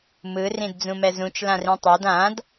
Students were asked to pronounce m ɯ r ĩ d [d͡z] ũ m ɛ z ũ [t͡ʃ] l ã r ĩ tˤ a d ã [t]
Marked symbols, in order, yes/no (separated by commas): yes, yes, no